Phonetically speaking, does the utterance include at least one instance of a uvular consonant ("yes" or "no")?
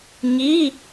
no